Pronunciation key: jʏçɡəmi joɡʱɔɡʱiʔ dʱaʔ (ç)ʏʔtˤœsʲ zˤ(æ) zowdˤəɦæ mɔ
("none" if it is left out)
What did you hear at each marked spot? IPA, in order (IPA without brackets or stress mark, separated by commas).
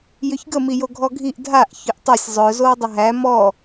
ç, œ